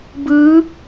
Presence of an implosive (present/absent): absent